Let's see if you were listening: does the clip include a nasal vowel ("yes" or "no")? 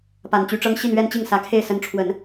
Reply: no